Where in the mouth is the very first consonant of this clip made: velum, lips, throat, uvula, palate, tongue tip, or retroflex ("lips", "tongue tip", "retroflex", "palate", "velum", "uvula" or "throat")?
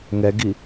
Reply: velum